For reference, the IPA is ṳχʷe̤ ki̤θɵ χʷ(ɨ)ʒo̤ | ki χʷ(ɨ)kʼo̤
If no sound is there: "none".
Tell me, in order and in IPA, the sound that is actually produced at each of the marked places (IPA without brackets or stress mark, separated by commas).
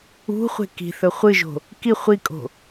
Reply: ɨ, i